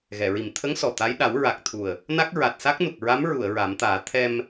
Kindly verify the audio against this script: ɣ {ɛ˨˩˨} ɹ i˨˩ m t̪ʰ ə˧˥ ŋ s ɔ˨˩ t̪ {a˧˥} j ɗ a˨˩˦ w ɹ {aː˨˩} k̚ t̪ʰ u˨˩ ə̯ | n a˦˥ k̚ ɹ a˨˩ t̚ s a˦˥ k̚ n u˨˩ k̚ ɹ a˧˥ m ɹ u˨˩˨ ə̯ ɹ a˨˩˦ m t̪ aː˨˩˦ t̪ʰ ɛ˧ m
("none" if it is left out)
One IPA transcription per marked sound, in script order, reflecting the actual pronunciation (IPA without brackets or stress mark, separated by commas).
ɛ˨˩˨, a˧˥, a˨˩